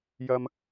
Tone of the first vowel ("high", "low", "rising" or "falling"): high